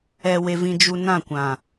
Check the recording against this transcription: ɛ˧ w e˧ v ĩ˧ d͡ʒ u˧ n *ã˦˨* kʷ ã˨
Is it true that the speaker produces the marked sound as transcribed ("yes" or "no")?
yes